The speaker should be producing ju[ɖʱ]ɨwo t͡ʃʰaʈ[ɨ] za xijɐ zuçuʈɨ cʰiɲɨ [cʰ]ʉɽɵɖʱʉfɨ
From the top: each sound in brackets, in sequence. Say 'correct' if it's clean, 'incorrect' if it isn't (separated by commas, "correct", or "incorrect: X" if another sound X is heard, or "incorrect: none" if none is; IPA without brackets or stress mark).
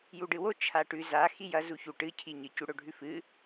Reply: incorrect: ɖ, incorrect: ʉ, incorrect: c